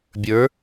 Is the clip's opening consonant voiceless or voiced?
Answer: voiced